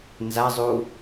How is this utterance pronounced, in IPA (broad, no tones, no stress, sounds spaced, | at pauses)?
n z a zˤ u